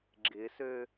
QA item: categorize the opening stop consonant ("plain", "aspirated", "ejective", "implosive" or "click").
click